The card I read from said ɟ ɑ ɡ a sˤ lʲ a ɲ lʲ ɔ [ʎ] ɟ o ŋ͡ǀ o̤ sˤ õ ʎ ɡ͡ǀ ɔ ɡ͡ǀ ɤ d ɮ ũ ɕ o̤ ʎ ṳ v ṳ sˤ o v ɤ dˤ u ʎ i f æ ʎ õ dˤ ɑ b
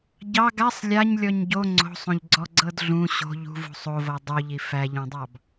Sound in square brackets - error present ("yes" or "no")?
yes